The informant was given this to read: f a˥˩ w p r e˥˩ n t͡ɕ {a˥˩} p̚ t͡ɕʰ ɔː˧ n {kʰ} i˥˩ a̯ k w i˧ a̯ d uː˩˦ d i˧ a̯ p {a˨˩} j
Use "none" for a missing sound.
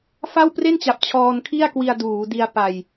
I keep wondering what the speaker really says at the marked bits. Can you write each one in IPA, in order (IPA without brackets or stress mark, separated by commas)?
a˨˩, kʰ, a˨˩